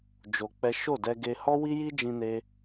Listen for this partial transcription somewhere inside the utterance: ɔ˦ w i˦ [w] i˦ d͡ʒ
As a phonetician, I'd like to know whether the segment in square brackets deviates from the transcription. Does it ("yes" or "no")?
yes